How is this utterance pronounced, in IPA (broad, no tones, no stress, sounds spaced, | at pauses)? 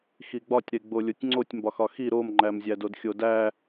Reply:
x i ɡ͡b ɒ tʲ ɾ e ɡ͡b o lʲ o tʲ ŋ͡ǀ o tʲ m b ɒ x ɒ x i ɾ o m ŋ͡ǃ æ m zʲ æ d o d xʲ o d æ